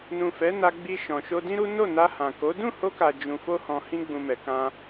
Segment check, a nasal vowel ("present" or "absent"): present